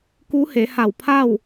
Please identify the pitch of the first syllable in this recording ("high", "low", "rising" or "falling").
rising